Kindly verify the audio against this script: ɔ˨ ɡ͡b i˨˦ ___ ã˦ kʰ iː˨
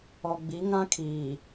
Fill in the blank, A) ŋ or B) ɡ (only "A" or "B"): A